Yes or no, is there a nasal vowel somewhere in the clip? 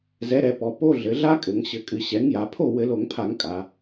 no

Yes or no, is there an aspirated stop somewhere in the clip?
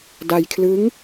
yes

